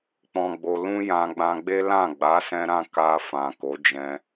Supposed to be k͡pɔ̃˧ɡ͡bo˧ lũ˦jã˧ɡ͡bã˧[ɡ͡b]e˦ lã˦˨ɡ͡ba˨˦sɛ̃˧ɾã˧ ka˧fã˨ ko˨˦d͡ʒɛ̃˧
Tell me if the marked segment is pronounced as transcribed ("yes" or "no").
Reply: yes